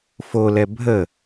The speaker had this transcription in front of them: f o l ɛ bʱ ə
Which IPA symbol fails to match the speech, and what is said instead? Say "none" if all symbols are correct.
none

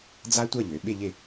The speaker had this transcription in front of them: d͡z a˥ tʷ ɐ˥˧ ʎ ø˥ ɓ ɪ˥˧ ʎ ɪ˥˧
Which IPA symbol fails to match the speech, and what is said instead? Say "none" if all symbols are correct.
ø˥ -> ø˩˧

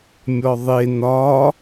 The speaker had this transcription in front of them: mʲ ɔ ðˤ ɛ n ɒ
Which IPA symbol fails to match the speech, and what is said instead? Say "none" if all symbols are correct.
ɛ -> e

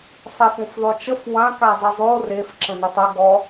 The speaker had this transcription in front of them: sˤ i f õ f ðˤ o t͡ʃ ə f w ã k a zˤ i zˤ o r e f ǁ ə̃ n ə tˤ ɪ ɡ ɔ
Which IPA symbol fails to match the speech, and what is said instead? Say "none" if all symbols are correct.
ɪ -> ə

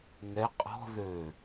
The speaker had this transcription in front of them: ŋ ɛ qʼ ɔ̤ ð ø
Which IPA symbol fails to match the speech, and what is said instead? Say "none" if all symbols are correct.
none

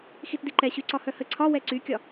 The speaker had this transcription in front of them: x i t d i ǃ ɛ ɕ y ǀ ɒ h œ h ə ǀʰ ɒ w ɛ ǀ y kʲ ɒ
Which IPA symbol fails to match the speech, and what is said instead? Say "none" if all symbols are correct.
none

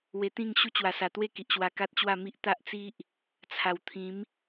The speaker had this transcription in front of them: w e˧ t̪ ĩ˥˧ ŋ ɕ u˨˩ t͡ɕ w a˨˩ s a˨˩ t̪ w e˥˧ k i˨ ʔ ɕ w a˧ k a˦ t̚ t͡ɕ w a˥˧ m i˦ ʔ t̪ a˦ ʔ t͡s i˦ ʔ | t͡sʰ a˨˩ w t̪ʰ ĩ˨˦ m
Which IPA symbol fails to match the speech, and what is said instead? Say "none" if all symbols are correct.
u˨˩ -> u˦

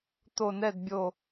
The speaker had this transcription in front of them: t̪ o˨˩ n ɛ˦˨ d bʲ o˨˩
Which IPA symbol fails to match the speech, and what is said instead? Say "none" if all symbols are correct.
none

